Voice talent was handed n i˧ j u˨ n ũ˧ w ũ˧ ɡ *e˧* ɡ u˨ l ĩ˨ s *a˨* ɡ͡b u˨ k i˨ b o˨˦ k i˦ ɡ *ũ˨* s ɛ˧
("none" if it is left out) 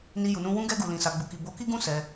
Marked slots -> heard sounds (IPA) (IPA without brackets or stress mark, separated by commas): ɛ˧, a˨, ũ˦